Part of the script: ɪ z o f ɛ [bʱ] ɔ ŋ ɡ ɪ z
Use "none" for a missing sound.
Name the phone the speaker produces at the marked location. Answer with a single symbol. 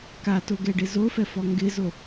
f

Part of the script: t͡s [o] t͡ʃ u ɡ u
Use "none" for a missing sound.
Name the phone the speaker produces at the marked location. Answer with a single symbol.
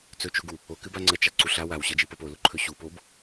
ɵ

